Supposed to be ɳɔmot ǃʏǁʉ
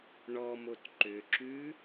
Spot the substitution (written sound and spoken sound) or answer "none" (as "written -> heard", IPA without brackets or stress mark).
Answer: none